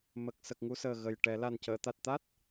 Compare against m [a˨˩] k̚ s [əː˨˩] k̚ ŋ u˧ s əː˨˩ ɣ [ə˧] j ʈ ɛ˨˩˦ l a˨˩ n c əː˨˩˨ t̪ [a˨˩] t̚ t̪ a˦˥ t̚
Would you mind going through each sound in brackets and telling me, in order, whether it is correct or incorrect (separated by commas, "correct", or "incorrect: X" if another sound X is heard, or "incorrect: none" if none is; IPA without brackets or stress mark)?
incorrect: ə˨˩, incorrect: ə˨˩, incorrect: ə˨˩, correct